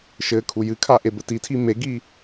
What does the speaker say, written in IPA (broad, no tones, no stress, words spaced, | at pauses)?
ʃɘ kʰujɨkʰa ʔebɘtitʰi meɡi